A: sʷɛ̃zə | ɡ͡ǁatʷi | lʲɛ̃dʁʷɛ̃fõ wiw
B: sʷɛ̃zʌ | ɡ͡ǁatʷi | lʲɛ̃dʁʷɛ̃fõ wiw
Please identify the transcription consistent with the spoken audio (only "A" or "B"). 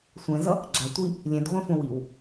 B